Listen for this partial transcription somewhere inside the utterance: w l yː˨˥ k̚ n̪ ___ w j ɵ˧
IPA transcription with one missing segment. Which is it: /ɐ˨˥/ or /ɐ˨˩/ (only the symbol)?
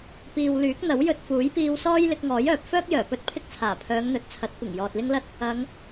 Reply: ɐ˨˥